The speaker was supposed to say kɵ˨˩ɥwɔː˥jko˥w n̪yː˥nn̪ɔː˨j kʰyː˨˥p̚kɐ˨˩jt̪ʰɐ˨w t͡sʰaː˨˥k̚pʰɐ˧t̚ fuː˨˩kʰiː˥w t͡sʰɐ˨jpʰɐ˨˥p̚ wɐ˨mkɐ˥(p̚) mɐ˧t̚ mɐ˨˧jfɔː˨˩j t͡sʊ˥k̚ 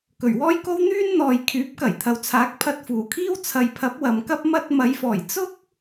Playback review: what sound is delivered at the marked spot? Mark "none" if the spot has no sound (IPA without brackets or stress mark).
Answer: p̚